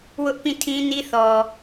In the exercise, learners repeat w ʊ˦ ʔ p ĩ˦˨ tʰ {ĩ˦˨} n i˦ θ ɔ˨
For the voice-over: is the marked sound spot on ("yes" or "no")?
no